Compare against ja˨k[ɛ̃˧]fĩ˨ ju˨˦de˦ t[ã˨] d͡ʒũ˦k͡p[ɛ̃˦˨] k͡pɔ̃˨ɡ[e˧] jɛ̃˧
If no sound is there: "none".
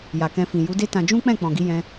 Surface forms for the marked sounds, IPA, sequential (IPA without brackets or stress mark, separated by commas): ɛ̃˧, ã˧, ɛ̃˦˨, i˧